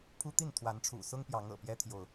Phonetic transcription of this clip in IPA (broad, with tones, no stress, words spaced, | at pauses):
pʰu˦t̪i˥˨n t̪ʰwa˨˦nʈ͡ʂʰṵ˨˩sʊ˦ŋpjɑ˨˦ŋ ɤ̰˨˩pjɛ˦t̪ʰjo˨ʊ̯